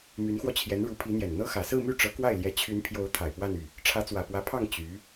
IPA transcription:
m y˧˥ n x w ɔ˧ t͡ɕʰ j ɛ˧˥ n ɻ u˧˥ pʰ i˧˥ n̪ j ɛ˨˩ n n̪ ɤ˥ x ä˨˩ s ɹ̩˥˧ m y˥˩ ʈ͡ʂ ɤ˧˥ k w a˥˩ ɪ̯ l j ɛ˧˥ t͡ɕʰ y˧˥ n pʰ j o˧˥ ʊ̯ t̪ʰ a˨˩ ɪ̯ p w a˥˧ n y˥˩ | ʈ͡ʂʰ ä˧˥ t͡s w ä˨˩ p w ä˧˥ pʰ ɑ˥˩ ŋ t͡ɕ y˧˥

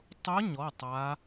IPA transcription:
tˤ ʊ˦˥ ɲ ɔ˧˥˧ tˤ a˦˥

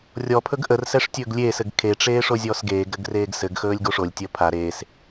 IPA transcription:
rʲ ɔ pʰ ɵ ɡ ʔ ə r s ɛ ʂ tʲ ɵː ɡ lʲ eː s ɘ ɡ kʰ e ʈ͡ʂ eː ʂ o zʲ ɔː s ɡ eː ɡ ɾ ɘ ɡ r eː ɡ s ɘ ɡ x ɵː lʲ ɡ o ʂ o lʲ tʲ əː pʰ a ɾ eː s

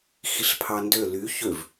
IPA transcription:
x i ɬ pʰ ɑ n d ø l y ç ø v

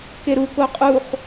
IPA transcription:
k e ɾ u k o qʼ u χ

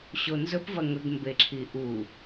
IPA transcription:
ɕ o n z ɵ p v ɐ ŋ ɵ ɡ m b e ǁʰ i ʔ u

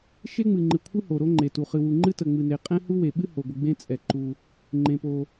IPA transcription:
ʃ e˥ ŋ͡m ɨ˩ ŋ͡ǃ ɨ˩ kʷʰ ɨ˥ h o˩ ɾ o˥ ŋ͡ǃ e˩ t u˩ χ ɨ˩ w u˩ ŋ͡ǃ ɨ˥ t ə˩ ŋ͡m ɨ˩ n e˩ qʼ ɛ̃˥ h u˥ w e˩ ɓ ɨ˥ h o˩ ɡʷ ɨ˩ ɡ͡b ẽ˥ t͡sʼ ɛ˩ ǃ u˩ | ŋ͡ǃ ẽ˩ p o˩

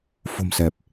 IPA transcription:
f o̤˨˩ m s ɛ˨˩ p̚

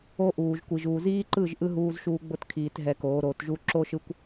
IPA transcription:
o˦ ʔ uː˨ ʒ kʷ i˨ ʒ uː˨ z iː˦ ǃ ɯ˦˨ ʒ ʔ ɯ˦ ɦ uː˦ z ʃ uː˦ ɡ͡b ʊ˦ t kʰ iː˨ t ɦ ɛ˨ k oː˨˦ ɾ o˨˦ t ʒ u˦ ǁ o˦ ʃ ɯ˦ kʷ

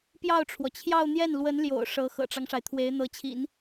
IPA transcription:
p j ɑ˥˩ ʊ̯ ʈ͡ʂʰ w ɔ˩ t͡ɕʰ j ɑ˥˧ ʊ̯ n̪ j ɛ˥˩ n l w ə˧˥ n l j o̰˨˩ ʊ̯ ʂ ɤ˧˥ x ɤ̰˨˩ ʈ͡ʂ ɑ˦ ŋ ʂ a˩ ɪ̯ t̪ʰ w e˧˥ ɪ̯ n̪ ɤ˧˥ t͡ɕʰ ḭ˨˩˦ n

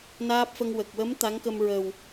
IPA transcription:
n aː˦˥ p̚ f ə˧ ŋ w ə˨˩ k̚ w ə˧˥ m t̪ a˧˥ ŋ k ə˧ m ɹ ə˨˩ w

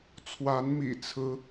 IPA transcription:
t͡sʰ w a˨˦ n m ḭ˨˩ t͡sʰ ɹ̩˦

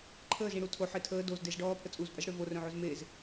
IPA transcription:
ǃʰ əː z ĩ ɽ u tʰ o ħ e tʰ əː d o z d e z ɖ ɔː pʰ ə t͡sʼ u z pʼ ə z ɽ ø v o r œ̃ ʕ o z m e z

